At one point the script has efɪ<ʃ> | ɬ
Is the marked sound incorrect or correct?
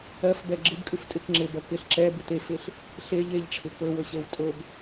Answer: incorrect